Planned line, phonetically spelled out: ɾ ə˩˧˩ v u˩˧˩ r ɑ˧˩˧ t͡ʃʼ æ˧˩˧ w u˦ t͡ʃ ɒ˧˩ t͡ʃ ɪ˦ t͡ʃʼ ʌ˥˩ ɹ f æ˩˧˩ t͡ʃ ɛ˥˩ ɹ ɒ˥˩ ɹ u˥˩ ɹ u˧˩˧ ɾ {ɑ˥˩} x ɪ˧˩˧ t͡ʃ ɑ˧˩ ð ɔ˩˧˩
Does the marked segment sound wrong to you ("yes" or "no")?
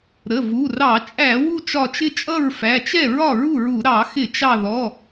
yes